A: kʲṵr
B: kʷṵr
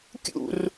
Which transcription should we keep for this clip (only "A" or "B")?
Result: A